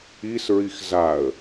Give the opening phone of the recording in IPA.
i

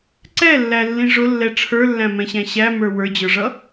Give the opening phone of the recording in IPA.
ǀ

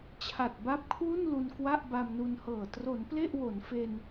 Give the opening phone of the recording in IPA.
t͡ɕʰ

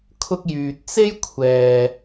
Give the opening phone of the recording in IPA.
kʰ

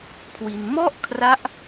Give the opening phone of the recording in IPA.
kʰ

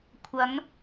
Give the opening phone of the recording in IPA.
kʷʰ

